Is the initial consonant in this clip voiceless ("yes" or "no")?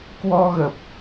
yes